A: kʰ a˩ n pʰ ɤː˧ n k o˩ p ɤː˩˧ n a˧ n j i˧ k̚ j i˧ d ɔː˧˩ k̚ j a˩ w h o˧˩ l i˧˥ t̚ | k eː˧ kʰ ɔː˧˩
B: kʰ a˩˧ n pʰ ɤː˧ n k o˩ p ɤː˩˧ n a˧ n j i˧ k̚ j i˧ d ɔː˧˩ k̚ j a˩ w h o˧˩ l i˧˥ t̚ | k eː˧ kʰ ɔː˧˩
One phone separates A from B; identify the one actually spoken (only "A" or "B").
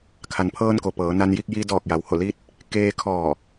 A